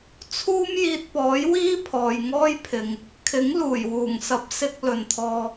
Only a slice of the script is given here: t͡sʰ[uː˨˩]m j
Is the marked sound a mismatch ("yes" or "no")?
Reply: yes